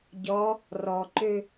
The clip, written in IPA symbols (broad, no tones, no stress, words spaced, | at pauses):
ɟɔ | rɔǃø